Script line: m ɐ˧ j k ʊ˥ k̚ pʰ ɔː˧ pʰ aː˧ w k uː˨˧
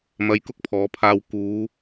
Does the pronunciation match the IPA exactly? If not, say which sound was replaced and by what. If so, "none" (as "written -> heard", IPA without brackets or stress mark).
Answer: ɔː˧ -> ɔː˨˧